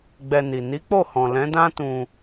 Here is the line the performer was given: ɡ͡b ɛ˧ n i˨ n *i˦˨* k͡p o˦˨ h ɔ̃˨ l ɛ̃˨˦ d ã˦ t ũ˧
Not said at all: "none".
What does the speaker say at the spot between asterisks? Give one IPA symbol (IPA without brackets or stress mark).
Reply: i˨˦